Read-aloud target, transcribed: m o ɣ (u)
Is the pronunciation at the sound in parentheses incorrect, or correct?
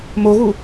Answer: correct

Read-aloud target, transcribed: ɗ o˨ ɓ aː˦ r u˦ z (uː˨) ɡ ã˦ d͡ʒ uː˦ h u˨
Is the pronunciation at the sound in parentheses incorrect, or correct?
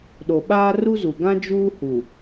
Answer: incorrect: u˨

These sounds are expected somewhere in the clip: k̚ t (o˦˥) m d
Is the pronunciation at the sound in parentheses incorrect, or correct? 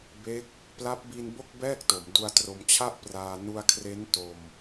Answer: incorrect: o˩˦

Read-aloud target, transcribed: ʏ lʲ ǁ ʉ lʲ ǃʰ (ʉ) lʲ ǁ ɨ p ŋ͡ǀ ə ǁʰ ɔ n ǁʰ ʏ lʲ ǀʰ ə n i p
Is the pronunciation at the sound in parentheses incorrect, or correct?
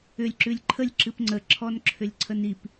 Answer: incorrect: ə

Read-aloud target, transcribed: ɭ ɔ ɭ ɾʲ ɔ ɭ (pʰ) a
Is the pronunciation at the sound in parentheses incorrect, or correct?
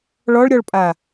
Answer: incorrect: pʼ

